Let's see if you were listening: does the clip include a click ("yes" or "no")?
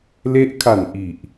no